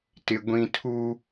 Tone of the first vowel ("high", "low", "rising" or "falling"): high